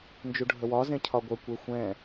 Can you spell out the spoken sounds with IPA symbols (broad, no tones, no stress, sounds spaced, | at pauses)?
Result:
n d͡ʒ u ɖʱ ə w ɒ z ẽ cʰ ɒ ɡʷ ə kʷ e xʷ ɛ̃